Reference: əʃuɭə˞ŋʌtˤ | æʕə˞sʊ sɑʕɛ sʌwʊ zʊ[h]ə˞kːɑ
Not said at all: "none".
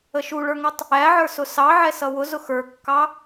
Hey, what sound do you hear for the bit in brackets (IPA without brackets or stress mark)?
x